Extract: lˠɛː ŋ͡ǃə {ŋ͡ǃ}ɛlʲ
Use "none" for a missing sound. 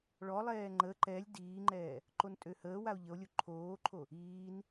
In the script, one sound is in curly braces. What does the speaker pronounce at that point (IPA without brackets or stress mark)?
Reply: ǃ